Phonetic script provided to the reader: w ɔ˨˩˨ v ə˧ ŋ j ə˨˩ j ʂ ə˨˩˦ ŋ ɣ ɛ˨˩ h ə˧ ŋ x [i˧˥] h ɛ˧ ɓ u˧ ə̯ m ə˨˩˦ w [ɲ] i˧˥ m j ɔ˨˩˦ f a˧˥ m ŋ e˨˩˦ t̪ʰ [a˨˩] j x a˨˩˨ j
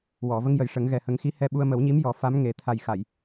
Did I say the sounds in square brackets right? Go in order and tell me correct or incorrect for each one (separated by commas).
correct, correct, correct